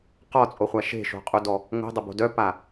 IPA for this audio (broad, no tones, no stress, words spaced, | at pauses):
qɔt͡sʼoχʷa ʃe̤ʃo̤qʼudɔ | ŋo̤dˤəbo̤ dœpa